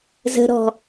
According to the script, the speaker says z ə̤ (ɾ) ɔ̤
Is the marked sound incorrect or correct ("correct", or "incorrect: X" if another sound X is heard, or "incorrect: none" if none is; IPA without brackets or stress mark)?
correct